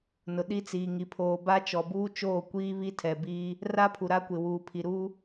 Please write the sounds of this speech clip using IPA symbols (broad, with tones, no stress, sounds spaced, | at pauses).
n ʊ˨ ɗ i˦ t͡s iː˨ ŋ i˨ pʰ oː˨ b a˦ t͡ʃ ɔ˨ b uː˦ t͡ʃ oː˦˨ kʷ iː˦ β i˦ tʰ ɛ˨ b iː˦ | r a˦ pʰ u˨ ɾ a˦ kʷ ɪ˨ w uː˨ pʰ i˨ ɾ uː˦